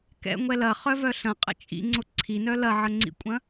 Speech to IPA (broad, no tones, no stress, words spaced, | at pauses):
kɛ̰ ŋʷɛlɐ χœvœɬɐ̃ qʼə̰t͡ʃʼḭ ŋ͡ǀʊǀʰinœ lɐʕəŋ͡ǀḭkʷʼɐ̃